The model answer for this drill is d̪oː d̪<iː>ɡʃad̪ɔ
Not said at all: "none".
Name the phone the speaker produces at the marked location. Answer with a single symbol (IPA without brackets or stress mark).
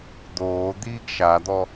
iː